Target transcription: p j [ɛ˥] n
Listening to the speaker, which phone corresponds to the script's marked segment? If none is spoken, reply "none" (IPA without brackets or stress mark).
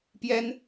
ɛ˥